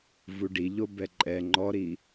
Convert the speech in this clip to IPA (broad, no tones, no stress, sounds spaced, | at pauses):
v u ɖ i ʎ o b ɛ ǃʼ ɛ ŋ͡ǃ ɔ ɾ i